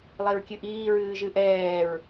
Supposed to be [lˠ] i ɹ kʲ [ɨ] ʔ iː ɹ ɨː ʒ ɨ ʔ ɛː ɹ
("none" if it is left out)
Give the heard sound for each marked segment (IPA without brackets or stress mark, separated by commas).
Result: lˠ, ɨ